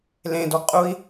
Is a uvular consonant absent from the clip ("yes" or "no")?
no